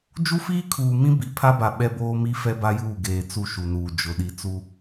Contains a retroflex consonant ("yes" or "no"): no